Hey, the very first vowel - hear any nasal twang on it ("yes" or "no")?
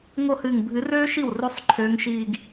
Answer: no